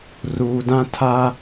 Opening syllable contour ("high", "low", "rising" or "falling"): low